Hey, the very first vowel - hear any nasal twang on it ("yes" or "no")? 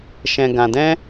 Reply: yes